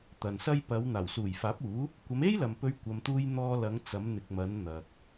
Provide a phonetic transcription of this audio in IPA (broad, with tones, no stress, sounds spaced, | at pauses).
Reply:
t̪ ɐ˨ n s ɐ˥ j p ɐ˨˧ w n̪ aː˨˩ w s uː˨˩ j f aː˨˥ p̚ uː˨˥ | kʷ ɐ˨˧ m e˥ j l ɐ˨ m p ɵ˧ ɥ kʷ ɐ˨ m t̪ uː˧ j n̪ ɔː˧ l ɐ˨˧ ŋ t͡s ɐ˨˧ m n̪ ɪ˨ k̚ m ɐ˨˧ n n̪ ɐ˨ k̚